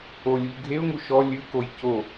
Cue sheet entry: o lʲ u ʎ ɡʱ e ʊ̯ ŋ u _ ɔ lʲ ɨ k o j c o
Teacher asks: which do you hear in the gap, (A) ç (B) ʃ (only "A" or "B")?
B